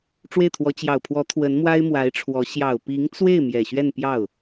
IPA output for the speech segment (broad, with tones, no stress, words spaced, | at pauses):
ʈ͡ʂwe˥˩ɪ̯t̪ʰwɔ˧˥ t͡ɕjɑ˨˩ʊ̯pʰwɔ˧˥ t̪ʰwə˧˥nmwa˥ɪ̯mwa˧˥ɪ̯ʈ͡ʂʰwɔ˧˥ ɕjɑ˨˩ʊ̯pi˧˥ŋt͡swe˥˩ɪ̯ mjɛ˨˩ɕɥɛ˥˧npjɑ˥˩ʊ̯